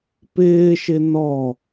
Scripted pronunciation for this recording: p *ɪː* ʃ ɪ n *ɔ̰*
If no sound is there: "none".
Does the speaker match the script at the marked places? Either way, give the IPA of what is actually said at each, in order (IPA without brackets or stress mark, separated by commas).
ɪː, ɔ